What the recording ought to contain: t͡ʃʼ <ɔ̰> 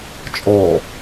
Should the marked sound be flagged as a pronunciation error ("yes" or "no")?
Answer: yes